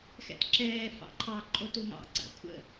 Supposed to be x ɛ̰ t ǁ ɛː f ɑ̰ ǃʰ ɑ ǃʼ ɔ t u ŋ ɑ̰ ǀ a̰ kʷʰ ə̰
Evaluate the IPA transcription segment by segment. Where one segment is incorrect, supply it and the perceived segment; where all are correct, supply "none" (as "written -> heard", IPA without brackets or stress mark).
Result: ɔ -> o